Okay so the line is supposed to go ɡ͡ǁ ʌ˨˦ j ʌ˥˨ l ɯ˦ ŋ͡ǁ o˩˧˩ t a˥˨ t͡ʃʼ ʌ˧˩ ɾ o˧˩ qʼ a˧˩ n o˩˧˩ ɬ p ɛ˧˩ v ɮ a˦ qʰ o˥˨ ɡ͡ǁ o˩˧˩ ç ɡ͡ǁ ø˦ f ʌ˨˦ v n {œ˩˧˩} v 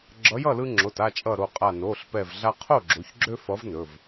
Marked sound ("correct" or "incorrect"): incorrect